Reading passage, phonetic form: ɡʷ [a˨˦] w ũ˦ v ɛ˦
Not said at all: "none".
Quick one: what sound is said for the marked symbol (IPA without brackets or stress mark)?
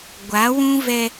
a˨˦